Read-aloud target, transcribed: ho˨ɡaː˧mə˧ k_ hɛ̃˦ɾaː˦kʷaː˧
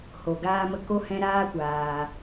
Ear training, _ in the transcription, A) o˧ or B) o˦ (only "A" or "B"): B